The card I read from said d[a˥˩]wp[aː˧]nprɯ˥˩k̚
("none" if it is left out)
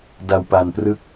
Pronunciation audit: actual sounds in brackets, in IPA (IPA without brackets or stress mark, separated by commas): a˧, a˧